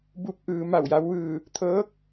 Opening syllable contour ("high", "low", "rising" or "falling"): falling